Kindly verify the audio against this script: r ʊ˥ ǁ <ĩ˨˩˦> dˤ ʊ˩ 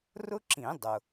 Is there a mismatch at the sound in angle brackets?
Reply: no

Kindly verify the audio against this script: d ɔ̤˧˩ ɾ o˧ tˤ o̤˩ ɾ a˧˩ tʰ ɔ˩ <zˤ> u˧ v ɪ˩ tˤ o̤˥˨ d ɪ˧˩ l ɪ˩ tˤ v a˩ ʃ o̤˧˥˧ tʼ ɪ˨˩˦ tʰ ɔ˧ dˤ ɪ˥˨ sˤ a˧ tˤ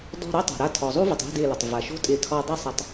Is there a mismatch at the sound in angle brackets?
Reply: no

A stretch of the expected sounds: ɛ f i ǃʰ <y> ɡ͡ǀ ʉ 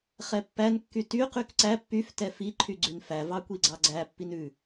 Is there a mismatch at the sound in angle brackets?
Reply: no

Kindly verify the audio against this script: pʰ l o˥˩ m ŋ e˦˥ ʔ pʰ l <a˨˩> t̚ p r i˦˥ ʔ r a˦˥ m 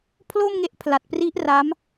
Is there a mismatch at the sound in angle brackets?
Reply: no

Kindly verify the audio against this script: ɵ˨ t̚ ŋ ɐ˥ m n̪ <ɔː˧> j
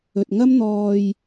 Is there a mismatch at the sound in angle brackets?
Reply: no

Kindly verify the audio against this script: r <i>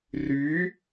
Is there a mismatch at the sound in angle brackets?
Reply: yes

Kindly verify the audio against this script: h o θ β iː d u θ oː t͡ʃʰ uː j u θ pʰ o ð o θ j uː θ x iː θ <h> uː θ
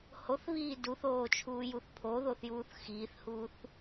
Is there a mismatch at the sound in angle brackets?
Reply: no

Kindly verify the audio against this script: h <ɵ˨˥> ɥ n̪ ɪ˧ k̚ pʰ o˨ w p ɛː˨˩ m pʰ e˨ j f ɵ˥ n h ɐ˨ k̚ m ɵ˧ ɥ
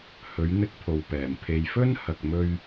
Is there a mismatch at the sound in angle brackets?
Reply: yes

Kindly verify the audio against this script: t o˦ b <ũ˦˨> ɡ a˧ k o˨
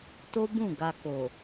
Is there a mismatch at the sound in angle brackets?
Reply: no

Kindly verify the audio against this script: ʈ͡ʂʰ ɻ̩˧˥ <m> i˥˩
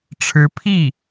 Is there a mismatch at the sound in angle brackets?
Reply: yes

